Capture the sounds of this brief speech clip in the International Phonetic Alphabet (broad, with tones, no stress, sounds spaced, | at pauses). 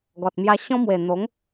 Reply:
ɡ ɔ˨ t̚ m j a˧ ɕ ɔ̃˦ m w e˨˩ n̪ o˨˦ ŋ